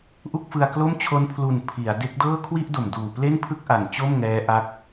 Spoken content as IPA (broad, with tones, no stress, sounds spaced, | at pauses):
ʔ u˥˩ k̚ f ɯ˧ a̯ k l o˥˩ m t͡ɕʰ o˦˥ n pʰ l u˨˩ n pʰ i˩˦ a̯ d e˦˥ k̚ d ɤː˥˩ kʰ w i˥˩ ʔ d o˨˩ m d uː˨˩ p l e˥˩ n pʰ ɯ˥˩ k̚ ʔ a˨˩ n t͡ɕ o˥˩ m ŋ ɛː˦˥ ʔ a˦˥ k̚